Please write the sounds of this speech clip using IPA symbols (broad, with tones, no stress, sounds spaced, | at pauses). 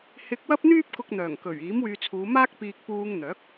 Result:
h ɪ˧ k̚ w ɐ˥ p̚ n̪ yː˥ p̚ k ʊ˧ k̚ n̪ œː˨˩ ŋ k ɵ˨˩ ɥ iː˨˥ m w yː˧ t͡sʰ uː˨˧ m aː˥ k̚ p iː˧ k̚ p uː˧ ŋ n̪ œː˨˥ k̚